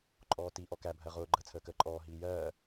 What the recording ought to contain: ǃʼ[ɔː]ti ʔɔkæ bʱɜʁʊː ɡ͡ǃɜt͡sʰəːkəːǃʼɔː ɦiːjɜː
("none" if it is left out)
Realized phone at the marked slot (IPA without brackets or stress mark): ɔː